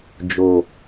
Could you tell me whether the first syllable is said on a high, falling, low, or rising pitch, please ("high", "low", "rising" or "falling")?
low